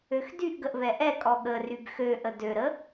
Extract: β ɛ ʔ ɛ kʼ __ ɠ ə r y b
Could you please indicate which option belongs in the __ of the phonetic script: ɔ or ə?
ɔ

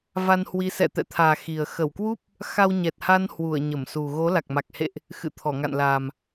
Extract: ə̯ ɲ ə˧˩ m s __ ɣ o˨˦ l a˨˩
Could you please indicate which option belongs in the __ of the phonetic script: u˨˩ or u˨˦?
u˨˩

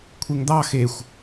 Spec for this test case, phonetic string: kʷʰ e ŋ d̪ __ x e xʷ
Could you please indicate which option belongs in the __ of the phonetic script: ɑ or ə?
ɑ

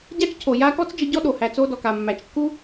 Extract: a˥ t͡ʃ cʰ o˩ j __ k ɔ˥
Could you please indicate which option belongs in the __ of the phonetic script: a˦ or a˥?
a˦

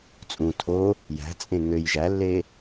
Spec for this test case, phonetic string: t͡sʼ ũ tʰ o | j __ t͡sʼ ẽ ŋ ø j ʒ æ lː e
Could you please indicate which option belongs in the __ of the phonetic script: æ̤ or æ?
æ̤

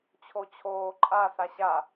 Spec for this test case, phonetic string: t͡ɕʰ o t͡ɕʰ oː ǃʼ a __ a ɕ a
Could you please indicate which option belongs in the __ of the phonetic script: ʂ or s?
s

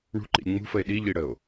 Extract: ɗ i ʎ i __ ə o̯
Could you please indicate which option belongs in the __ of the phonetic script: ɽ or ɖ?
ɽ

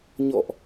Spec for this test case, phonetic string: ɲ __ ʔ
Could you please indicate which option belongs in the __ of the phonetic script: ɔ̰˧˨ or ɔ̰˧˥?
ɔ̰˧˨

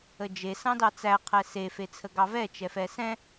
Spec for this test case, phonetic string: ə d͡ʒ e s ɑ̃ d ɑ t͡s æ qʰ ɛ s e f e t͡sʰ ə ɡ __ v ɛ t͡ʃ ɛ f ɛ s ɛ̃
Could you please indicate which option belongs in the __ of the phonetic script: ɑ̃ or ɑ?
ɑ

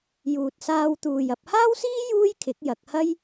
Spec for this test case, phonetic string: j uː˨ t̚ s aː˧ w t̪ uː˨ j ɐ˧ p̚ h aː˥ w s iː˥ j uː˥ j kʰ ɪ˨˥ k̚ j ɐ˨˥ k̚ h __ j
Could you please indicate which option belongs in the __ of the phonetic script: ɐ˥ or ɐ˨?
ɐ˥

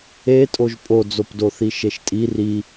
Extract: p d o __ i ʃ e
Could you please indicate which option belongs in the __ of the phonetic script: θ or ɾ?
θ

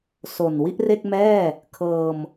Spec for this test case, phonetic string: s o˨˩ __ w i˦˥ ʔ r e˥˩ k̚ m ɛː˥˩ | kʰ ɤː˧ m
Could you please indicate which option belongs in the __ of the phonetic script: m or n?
n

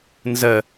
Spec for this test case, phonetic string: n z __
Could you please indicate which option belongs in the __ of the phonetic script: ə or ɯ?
ə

